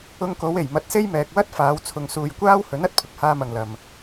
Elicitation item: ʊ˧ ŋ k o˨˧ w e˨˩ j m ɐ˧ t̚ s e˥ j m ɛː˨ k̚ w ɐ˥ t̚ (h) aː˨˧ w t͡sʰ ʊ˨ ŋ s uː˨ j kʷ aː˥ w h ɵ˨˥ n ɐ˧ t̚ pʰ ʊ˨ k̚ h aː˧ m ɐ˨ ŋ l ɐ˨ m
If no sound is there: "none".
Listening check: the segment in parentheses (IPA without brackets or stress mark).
f